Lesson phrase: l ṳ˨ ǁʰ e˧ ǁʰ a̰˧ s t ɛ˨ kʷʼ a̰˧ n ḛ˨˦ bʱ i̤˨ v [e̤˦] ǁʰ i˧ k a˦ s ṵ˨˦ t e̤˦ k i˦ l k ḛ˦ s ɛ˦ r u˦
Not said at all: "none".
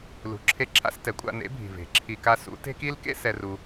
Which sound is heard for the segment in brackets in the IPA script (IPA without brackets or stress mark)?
e̤˨